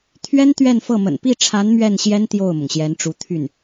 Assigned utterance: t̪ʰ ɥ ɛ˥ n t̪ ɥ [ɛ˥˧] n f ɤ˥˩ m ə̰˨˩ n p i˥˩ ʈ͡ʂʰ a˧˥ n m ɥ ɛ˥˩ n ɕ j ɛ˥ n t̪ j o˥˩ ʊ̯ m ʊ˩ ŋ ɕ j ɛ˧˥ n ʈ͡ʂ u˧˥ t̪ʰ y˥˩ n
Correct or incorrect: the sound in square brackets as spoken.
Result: correct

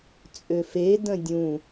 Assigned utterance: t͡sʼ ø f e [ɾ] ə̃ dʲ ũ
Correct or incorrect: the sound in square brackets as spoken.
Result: incorrect: d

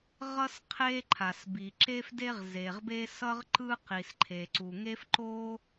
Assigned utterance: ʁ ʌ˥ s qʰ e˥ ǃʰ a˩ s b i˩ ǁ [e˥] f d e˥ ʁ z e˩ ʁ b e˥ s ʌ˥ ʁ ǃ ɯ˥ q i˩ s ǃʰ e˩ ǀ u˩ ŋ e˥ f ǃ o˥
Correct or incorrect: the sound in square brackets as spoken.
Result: correct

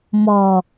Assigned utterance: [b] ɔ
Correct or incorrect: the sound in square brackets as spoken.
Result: incorrect: m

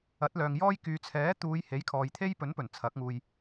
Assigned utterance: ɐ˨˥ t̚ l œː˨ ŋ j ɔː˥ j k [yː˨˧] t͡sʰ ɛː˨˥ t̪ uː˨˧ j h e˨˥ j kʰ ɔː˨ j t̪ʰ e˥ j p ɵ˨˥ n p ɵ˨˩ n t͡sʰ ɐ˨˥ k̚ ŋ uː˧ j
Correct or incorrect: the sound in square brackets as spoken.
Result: correct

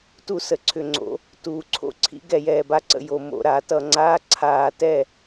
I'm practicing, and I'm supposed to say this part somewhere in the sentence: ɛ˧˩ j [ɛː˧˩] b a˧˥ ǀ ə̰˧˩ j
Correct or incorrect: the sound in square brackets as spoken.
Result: correct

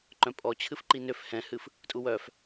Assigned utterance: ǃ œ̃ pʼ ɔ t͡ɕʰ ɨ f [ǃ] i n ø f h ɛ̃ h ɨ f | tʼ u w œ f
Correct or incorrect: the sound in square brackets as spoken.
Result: correct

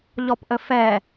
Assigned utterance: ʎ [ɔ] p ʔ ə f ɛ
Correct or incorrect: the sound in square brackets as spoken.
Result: correct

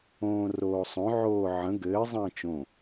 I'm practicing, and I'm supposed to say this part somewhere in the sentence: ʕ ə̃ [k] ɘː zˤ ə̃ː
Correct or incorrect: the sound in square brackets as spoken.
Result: incorrect: ɡ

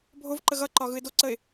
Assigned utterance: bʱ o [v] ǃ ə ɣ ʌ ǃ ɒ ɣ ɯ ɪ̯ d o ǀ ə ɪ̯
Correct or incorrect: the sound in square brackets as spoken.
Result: correct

